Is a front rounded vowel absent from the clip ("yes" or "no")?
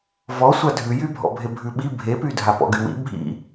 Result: no